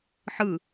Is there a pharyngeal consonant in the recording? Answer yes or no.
yes